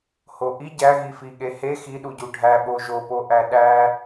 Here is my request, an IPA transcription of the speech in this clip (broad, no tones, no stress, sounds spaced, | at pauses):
h o ʔ i ɟ æ ɣ i f i ɠ e h e x i ɗ u ɟ u ɖʱ æ ɓ o ʒ o p o ʔ æ ɗ æ